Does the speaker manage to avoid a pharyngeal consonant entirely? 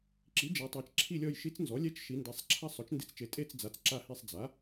yes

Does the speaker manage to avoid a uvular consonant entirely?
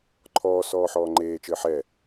yes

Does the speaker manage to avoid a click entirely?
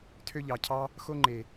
no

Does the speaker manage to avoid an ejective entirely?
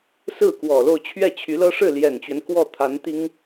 yes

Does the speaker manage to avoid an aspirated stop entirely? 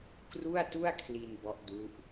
no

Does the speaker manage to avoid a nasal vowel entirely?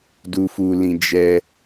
no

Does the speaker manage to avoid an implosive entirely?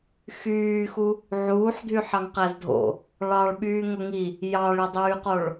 no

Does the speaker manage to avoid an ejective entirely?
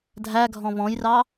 yes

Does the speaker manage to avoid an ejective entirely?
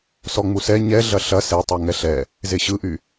yes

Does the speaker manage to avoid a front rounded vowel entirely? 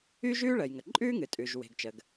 no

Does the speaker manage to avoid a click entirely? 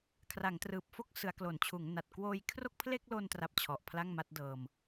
yes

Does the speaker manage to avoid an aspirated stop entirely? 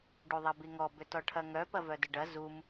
no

